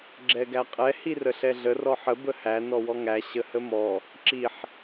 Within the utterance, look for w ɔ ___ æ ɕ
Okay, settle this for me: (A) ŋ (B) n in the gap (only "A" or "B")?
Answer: A